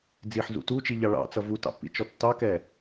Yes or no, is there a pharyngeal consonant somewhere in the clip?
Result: yes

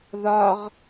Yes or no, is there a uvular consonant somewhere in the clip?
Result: yes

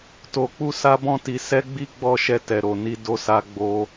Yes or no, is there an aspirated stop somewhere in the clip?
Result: no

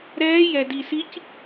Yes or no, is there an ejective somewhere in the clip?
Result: no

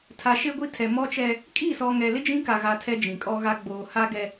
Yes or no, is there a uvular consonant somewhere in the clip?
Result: no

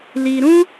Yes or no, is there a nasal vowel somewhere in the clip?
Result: yes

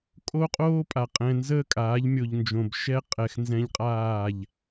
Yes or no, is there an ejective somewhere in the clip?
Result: yes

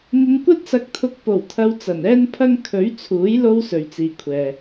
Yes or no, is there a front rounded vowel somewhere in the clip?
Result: no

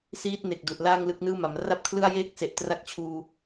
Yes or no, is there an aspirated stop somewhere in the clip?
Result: yes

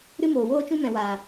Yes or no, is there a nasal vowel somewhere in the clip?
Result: yes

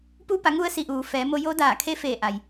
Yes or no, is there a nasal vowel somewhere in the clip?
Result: no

